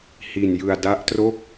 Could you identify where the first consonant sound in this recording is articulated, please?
glottal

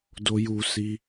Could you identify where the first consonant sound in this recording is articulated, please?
alveolar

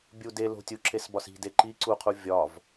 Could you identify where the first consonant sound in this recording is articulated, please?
labial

